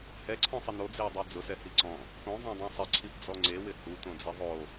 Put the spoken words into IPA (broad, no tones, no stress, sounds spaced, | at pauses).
h ɛ ǀʰ ɔ̃ sˤ ɪ n o d͡z e w dˤ o d͡z ʊ s ɛ h i ǀ ɔ̃ | k õ zˤ õ dˤ ĩ sˤ ɪ ǀʰ i p d͡z ɔ ŋ͡ǀ e w ɪ h u t õ d͡z ɛ ðˤ o